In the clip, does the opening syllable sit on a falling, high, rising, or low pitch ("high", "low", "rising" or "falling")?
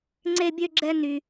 high